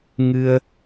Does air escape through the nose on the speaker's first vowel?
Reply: no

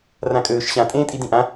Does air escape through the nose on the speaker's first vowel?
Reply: yes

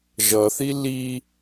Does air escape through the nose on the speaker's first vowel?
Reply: no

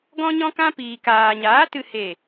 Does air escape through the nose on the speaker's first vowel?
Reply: yes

